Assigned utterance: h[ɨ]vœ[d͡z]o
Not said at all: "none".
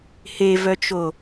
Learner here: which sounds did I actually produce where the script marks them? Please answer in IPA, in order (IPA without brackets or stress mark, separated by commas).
e, t͡ʃ